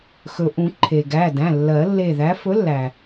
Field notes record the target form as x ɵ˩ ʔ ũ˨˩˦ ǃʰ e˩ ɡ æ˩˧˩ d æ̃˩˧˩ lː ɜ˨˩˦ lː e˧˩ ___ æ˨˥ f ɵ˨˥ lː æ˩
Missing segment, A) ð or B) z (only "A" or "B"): A